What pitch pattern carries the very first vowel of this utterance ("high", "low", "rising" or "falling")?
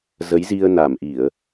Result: rising